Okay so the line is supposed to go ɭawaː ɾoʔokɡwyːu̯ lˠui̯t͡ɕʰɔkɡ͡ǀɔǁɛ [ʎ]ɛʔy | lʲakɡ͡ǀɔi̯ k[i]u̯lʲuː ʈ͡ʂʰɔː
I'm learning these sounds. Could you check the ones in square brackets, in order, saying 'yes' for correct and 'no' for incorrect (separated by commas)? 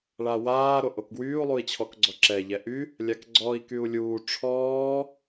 yes, no